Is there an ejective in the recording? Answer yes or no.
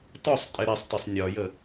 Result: yes